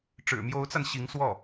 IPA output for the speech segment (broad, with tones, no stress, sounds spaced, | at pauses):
ʈ͡ʂ ɻ̩˨˩ m j o˧˥ ʊ̯ t͡s a˧ n ɕ i˧˥ ŋ s w ɔ˥˩